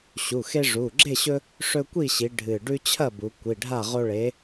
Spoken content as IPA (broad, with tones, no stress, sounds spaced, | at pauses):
ɕ u˩˧˩ x e˦ ʐ u˩˧˩ ɡ͡ǁ e˥˨ ɕ ɵ˦ | ʂ ɵ˦ kʷ i˥˨ ɕ i˨˥ ɖʱ ɨ˧˩ ɖ ʉ˦ t͡ɕʰ ɐ˥˨ b u˩˧ kʷ i˩˧˩ ɖʱ a˥˨ ʁ o˦ ɭ e˨˥